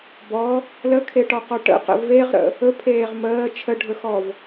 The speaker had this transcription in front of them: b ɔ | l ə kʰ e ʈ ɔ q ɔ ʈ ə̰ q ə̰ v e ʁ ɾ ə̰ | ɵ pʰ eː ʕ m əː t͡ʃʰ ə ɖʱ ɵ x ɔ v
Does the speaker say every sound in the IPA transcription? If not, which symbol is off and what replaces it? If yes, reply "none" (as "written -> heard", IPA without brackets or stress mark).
ʕ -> ʁ